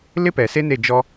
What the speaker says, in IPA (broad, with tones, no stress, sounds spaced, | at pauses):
l ɪ˦ p ɛ˨ s e˦ n e˦˨ d͡ʒ ɔ˦